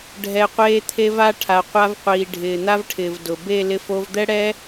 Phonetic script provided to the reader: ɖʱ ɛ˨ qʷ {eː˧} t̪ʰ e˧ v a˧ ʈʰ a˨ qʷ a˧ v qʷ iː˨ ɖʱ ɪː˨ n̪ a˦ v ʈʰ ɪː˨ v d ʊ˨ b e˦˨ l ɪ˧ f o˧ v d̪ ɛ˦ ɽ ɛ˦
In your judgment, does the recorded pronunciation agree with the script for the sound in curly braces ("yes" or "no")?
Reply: yes